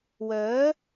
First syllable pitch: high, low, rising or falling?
rising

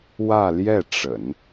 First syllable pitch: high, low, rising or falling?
falling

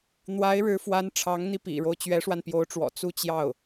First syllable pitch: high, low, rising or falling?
rising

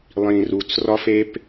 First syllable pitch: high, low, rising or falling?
low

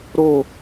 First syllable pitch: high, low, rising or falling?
falling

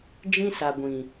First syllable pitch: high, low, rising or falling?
high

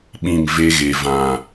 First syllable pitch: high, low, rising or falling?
falling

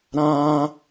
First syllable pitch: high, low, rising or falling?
high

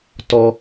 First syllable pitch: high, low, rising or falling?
high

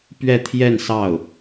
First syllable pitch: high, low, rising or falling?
falling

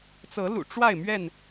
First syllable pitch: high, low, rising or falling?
rising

